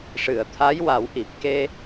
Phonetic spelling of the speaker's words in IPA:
ʂɨ˨˩˨ə̯t̪ʰa˧˥jwa˨˩˦wʔi˨˩p̚ ke˧

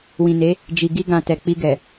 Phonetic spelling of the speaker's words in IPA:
wĩ˨ne˨˦ | d͡ʒi˨ɡi˧ɡã˨ tɛ˨k͡pi˧ɡɛ˨

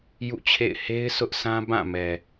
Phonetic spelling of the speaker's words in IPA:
jṵ˦˨ t͡ɕʰḛ˦˨ɪ̯ he˦ɪ̯ sʊ˦ʔsã˦ bã˦˨mɛ˨

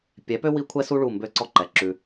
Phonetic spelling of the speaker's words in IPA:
pʲɛ˩˥pø˥ wi˥kʷʰɛ˥su˥ ɭu˥˩mbø˥˩ǀɔ˥ǃɛ˩ ǁʉ˩

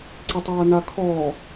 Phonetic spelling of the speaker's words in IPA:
ǀetˤaːnakʰɔː

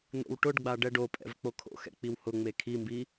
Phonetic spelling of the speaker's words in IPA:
n̪o̰wʈʊɖɡ͡ba ɖɛɖopʼɛ̰v k͡pokʰo̰xɛ̰ k͡piwhʊŋ͡me kʰimbi

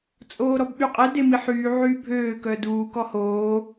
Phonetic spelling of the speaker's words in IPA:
t͡sʼoːɾɔbɓyqʼɛ demiħyː ʕyːbʱøː kœduː kɔhoː

